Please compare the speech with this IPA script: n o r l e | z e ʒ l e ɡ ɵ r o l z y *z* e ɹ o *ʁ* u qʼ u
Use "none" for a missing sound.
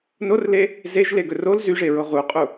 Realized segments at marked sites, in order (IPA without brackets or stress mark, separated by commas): ʐ, ʁ